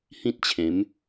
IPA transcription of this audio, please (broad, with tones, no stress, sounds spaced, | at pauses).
h ĩ˦ t̚ t͡ɕʰ ẽ˨˦ m